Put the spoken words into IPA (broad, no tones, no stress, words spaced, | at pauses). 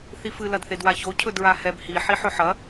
θifɨ lɐdθedwaço cʰɵdɹahɛb hi ħiħɵħɐ